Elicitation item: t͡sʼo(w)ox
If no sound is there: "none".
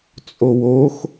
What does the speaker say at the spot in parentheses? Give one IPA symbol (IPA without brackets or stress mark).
w